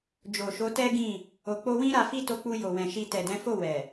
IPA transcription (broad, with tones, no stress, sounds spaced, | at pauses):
d͡ʒ o˨ ʃ o˨˦ t ɛ˦ ɡ ĩ˦˨ | o˨ k͡p o˧ w ĩ˦ ɾ a˧ f i˦ t o˧ k͡p u˧ j o˨ w ɛ̃˨ ʃ i˧ t ɛ˨ d ɛ̃˨˦ f o˦˨ w ɛ˨